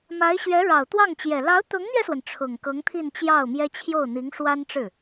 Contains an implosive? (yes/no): no